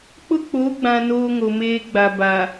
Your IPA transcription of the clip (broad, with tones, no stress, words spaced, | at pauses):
k͡pʊ˦k͡po˨˦ɡ͡bã˨ noː˦ ŋo˨meː˦ɡ͡ba˨ba˨